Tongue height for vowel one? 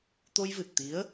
mid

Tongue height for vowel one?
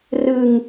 high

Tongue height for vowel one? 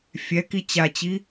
mid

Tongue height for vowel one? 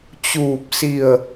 high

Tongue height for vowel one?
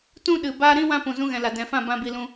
high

